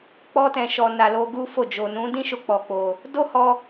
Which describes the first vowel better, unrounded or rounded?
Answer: rounded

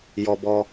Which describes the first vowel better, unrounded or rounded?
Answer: rounded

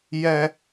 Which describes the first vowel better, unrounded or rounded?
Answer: unrounded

